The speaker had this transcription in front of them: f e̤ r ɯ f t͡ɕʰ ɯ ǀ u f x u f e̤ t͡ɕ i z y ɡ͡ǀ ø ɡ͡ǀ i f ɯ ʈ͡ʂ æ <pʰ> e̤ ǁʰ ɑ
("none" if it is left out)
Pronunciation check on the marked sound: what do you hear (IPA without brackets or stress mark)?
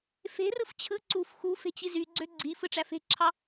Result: f